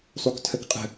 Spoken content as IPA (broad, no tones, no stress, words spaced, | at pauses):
sˤuktʰəkqʼə̤